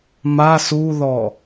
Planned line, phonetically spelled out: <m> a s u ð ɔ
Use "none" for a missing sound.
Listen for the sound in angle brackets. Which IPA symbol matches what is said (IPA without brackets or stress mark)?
m